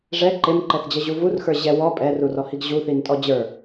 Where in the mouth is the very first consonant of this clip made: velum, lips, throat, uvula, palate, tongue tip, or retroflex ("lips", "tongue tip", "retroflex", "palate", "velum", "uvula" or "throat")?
retroflex